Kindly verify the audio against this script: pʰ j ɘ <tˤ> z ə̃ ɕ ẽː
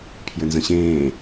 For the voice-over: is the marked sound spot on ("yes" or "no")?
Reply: no